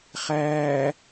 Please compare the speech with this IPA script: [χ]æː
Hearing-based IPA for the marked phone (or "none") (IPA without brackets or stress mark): χ